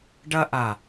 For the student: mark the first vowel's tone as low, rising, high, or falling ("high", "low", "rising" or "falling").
high